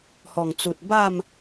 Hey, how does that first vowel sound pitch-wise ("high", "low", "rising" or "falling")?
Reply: low